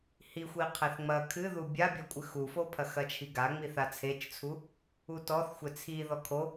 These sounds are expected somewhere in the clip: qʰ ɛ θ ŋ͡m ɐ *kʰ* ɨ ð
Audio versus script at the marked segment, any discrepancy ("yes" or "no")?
no